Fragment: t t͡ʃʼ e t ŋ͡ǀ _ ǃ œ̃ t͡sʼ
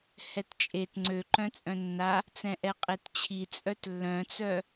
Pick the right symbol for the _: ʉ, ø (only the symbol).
ø